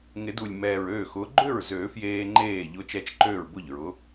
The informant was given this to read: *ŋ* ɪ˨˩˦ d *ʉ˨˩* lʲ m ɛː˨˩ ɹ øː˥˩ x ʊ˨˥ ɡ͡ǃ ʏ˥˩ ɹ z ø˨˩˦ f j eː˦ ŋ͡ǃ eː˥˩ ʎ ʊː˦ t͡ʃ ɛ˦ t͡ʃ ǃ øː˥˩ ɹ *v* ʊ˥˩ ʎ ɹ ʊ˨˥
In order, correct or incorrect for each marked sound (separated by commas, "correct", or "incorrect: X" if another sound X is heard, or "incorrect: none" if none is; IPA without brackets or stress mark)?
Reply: correct, incorrect: u˨˩, incorrect: b